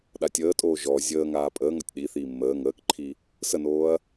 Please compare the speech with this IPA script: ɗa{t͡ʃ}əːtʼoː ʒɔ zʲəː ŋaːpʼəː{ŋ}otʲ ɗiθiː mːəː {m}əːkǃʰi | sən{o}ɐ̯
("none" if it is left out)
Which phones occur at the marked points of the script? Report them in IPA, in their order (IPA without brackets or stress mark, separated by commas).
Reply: tʲ, ŋ, ŋ, oː